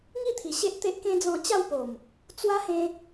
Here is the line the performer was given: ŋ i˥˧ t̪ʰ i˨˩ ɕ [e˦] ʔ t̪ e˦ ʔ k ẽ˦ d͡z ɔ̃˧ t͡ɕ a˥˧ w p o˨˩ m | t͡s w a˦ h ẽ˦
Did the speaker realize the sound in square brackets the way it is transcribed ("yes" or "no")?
yes